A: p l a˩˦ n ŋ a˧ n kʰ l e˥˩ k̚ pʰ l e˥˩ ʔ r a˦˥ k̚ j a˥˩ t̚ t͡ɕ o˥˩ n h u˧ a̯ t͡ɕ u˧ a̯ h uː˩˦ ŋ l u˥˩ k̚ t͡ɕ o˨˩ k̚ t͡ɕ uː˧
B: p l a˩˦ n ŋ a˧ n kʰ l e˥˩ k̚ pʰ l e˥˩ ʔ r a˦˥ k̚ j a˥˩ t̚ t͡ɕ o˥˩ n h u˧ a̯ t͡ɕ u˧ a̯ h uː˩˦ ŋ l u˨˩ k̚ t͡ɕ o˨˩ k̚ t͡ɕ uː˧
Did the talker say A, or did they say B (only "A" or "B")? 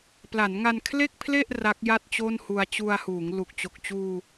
B